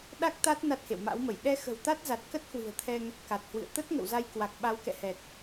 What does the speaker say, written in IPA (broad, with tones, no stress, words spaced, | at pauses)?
ɗa˦˥k̚t̪a˦˥t̚ na˦˥t̚hḛ˧˨wma̰˧˥wmə˧˩j ɗɛ˧xə̤˨˩wt̪a˦˥t̚za˨˩t̚ kə˦˥t̚kwɨ̤˨˩ə̯t̪ʰɛ˧ŋ | ka˨˩t̚hwɨ̰˧˨ə̯ t̪ə˦˥t̚ ŋə̰˧˨wza˧jkwa˨˩k̚ ɓa˨˦wkɛ̰˧˨hɛ˨˩t̚